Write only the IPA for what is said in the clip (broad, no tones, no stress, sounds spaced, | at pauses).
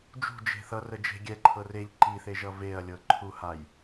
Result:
d͡ʒ ṳ d͡ʒ e̤ θ ʌ r ə d͡ʒ e̤ ɡʲ ɛ ǃʰ ɤ r e ʎ ǃ i θ e ʒ ʌ v e ɐ̯ lʲ ɤ ǃʰ u h a j